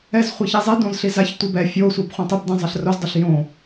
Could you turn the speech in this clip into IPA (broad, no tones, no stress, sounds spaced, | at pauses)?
ɛ z χʷ e ç i zˤ i d õ z ɬ i z a ç tʷ i b ɛ fʲ o sʷ a b χʷ ɛ̃ tˤ i b d ẽ zˤ ɜ ɬ r o z dˤ o ɬ j õ